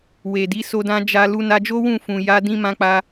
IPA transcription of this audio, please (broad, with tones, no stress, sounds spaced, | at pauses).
w e˨ d i˨˦ s o˧ d ã˧ d͡ʒ a˧ l u˧ n a˧ d͡ʒ o˦ w ũ˦˨ f ũ˨ j a˧ d ĩ˧ m ã˧ k͡p a˧